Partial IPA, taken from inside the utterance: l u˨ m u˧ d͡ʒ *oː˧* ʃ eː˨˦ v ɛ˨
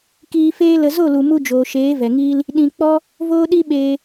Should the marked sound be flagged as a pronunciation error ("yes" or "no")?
yes